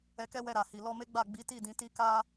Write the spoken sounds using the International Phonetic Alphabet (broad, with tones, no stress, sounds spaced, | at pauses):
ɛ˧ k ɛ˦ w ɛ˧ ɾ a˨ h i˨ l ɔ˧ m e˦ ɡ͡b a˦˨ ɡ͡b i˨˦ t i˦˨ d ĩ˨˦ t i˧ k a˧